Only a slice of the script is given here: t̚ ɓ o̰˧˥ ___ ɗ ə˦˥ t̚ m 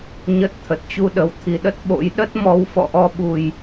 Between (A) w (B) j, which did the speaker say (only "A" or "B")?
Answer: B